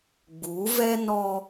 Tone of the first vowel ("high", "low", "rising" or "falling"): rising